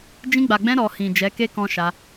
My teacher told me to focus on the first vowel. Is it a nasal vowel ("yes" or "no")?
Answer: yes